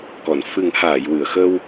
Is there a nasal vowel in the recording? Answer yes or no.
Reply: no